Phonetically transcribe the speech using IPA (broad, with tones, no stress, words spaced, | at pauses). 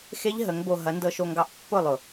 xe˦ʎ ɦə˨˦ŋbo˧ ɦɐ˨˦ndɤ˧ʃo˧ŋɡɑ˧ʔ pːʊ˦˨lˠʊ˨